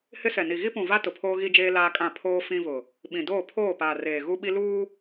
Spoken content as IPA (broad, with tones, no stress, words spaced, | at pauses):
hɪ˦sɛ˨ni˨ ɣi˦pũ˨va˦ tʊ˨pʰoː˦ɣi˦d͡ʒeː˦ laː˦kʼã˦˨ pʰoː˦ fĩ˦vʊ˨ | ɓĩ˨ doː˦˨ pʰoː˦˨paː˨reː˨ ɣu˦ɓi˦luː˦